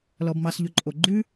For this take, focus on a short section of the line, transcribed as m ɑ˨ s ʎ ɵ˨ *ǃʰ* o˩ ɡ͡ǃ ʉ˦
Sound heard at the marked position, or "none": ǃʼ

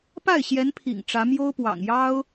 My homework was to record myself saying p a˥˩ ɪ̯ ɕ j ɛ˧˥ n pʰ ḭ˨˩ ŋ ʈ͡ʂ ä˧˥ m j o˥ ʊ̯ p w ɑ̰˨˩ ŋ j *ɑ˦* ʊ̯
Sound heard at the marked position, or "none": ɑ˥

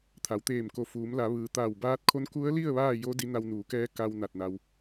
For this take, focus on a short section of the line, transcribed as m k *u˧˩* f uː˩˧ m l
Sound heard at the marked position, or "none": o˧˩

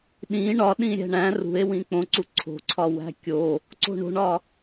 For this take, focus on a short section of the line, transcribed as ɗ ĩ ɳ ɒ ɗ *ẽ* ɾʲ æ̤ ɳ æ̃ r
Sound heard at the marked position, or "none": ĩ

